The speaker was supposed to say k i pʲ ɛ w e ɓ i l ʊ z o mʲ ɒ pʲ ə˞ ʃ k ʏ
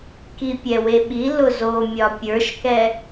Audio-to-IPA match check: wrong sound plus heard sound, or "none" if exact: ʏ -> ɛ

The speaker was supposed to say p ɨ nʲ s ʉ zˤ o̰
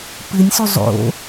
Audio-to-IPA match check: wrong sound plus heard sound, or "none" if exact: none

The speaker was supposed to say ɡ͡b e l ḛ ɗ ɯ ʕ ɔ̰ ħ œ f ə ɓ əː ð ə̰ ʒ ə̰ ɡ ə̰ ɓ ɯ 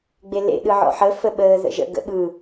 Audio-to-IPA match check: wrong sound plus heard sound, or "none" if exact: œ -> ə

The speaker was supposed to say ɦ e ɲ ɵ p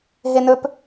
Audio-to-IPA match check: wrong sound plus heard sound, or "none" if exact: ɲ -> n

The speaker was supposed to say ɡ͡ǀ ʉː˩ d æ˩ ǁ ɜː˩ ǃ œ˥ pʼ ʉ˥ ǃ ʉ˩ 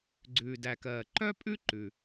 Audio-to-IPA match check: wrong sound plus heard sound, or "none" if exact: ǁ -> k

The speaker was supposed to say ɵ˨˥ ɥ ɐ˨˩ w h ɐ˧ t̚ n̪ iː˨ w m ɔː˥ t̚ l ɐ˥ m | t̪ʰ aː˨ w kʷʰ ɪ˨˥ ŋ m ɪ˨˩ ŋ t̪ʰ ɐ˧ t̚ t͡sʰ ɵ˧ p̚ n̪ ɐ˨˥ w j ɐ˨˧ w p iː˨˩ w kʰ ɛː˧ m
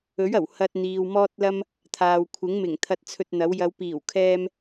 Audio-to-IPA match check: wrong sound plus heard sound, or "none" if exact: p̚ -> t̚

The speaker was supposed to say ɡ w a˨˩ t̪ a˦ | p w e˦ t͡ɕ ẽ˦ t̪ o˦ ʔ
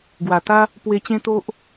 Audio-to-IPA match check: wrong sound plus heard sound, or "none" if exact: none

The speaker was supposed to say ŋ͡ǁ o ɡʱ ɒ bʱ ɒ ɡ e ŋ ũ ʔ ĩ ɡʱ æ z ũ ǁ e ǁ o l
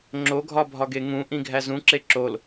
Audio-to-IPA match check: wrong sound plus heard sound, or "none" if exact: none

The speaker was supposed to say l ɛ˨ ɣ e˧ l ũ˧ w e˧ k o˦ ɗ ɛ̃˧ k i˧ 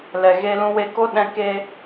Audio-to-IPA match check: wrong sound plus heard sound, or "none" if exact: i˧ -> e˧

